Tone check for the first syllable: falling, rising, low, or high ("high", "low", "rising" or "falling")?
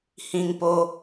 high